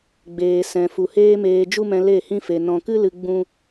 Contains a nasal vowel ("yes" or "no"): yes